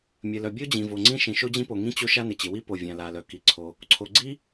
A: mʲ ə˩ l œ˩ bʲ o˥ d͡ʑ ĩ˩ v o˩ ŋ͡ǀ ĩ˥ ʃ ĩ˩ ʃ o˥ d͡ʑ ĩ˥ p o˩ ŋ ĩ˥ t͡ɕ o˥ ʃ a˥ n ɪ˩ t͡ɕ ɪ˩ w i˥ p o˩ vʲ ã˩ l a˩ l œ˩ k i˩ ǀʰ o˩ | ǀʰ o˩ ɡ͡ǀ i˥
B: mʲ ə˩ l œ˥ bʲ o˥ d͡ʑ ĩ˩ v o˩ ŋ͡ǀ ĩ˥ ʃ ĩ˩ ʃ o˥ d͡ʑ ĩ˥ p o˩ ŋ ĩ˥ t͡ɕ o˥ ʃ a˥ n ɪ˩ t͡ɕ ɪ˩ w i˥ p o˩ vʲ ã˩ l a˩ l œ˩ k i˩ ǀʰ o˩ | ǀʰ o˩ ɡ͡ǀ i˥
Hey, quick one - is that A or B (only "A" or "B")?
A